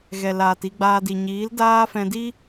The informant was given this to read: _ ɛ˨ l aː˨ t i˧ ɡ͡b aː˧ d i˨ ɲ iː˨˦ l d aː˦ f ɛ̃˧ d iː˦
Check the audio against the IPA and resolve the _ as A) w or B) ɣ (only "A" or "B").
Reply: B